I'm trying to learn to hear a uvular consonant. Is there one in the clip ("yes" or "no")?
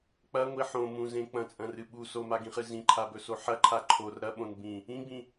yes